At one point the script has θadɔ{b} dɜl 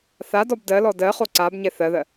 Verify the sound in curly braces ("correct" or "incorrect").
correct